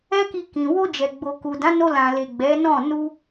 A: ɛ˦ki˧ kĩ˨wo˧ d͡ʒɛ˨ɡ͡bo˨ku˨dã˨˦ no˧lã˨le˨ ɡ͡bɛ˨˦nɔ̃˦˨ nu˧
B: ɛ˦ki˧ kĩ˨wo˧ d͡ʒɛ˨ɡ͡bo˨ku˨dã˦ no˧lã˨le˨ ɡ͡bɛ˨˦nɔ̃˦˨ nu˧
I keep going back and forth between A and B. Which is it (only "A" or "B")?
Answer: A